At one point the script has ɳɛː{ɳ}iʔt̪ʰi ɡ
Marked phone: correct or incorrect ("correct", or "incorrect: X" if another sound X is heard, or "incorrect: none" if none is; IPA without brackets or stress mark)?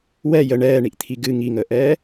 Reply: correct